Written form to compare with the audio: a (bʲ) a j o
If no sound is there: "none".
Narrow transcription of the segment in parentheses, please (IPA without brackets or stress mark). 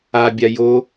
bʲ